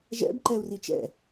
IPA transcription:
ʒɛ̰b ǃɛu̯rit͡ʃɛ̰

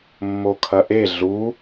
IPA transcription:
mːokʰɐʔe ɮu

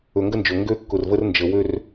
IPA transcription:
ɵ˨ŋɡə˦nd͡ʒɵ˨ ŋɡø˦kːʊ˨rvə˦r nd͡ʒə˨wø˦r

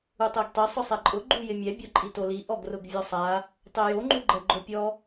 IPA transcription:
utˤeɡtˤe sˤʊsˤɛǃʼʊ ɡ͡ǃujɪmʲɛ bʲɔǃʼitoli ʔɔɡrʊɡvʲɔsˤa | tˤejo ŋ͡ǃuɡ͡ǃɛɡ͡ǃopʲɔ

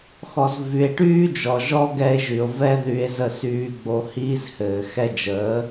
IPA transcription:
xɔ˨zvy˨e̯ʈyː˦ d͡ʒɔ˨ʒɔ˦ɡɛ˧e̯ ʒy˨o̯vɛ˦ ðy˧e̯zə˦˨syː˧ ɡ͡bo˧hiː˦zhɘː˨ xɛ˧d͡ʒəː˨˦

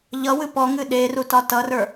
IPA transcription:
ʎʌwɨ pɔŋɨ ɗerutɒ tʌrə˞

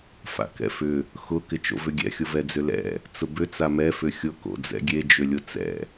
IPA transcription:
fa̰kɛ̰fʏ | xʊ kɪt͡ʃo̰vʏɡʲɛ̰ xʲʊvɛd͡zʏlɛ̰ | t͡sʊbʏ t͡samɛ fʏxʲʊ ko̰d͡zɛ̰ɡʲe d͡ʒʏlʲʊt͡sɛ̰

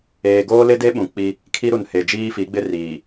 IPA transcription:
eː˨ɡoː˦lɪ˦de˦ ɓũ˨k͡pi˦ | kʰi˦ɾu˨nhe˨ d͡ʒiː˦fi˨˦ɡ͡bɪ˦ riː˨

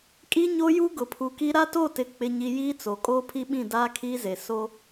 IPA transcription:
kʼi˦ɲo˦ju˦ ɡʊ˨pʰu˨ki˦ ɾa˦to˦˨tɪ˨ k͡pɪ˦ɲi˦ jiː˦t͡so˨ kʼoː˦pʰi˦ɓĩ˦˨ daː˦kʰiː˦ze˨ so˦

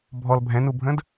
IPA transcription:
bʱɔl bʱɛ̃nubʱə̃d

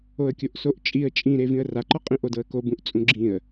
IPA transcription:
oə̯kʲoʔsoʔt͡ʃʼiə̯ t͡ʃʼĩɾe vĩə̯raǃɔqʼĩ ʔodɤə̯kobũʔ t͡sʼũɡ͡ǁĩə̯

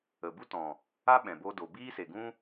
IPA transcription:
ə˨bu˦tɔ̃˨ | a˦ɓɛ̃˨bo˧ do˨biː˦se˨ɡũ˦

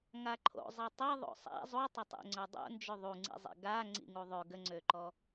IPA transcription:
ŋaǃʰo̰ zˤitˤi ðˤo̰sˤa̰ zˤutˤətˤḛŋ͡ǀœ dˤo̰nd͡ʒø ðˤuŋ͡ǀḭzˤḛ ɡa ŋ͡ǀḭŋuðˤø ɡəŋ͡ǀøǃɔ

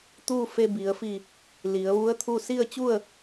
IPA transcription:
t̪uː˥˨fe˧bi˩˧ə̯fi˧˩ | li˩˧ə̯ʋu˧˥ə̯ t̪ʰu˥˨ si˥˨ə̯t͡ɕu˥˨ə̯

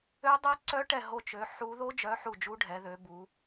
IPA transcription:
ø˦˥dˤɛ˦˥ǀœ˦˥ ʈɛ˦˨ɦo˦˨t͡ʃø˨˦ ħu˦˥ ðo˦˥d͡ʒœ˨˦ ħu˦˨ d͡ʒu˦˥ɖʱɛ˨˦ðø˨˦ bu˨˦

